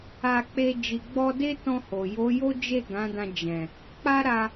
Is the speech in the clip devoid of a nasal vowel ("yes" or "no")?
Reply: no